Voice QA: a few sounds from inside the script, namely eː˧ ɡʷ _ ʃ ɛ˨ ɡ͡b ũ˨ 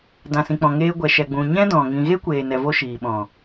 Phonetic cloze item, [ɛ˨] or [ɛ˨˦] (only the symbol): ɛ˨